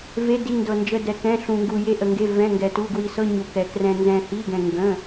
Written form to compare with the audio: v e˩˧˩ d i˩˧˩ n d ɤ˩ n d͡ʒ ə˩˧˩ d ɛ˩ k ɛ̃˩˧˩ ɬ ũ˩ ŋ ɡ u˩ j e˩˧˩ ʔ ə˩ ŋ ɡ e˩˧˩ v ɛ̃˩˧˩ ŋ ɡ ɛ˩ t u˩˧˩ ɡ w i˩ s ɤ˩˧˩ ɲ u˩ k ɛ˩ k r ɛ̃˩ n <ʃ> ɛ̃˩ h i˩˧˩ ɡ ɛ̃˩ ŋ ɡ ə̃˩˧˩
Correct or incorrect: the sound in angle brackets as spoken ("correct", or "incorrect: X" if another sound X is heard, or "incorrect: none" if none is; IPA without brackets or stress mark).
incorrect: z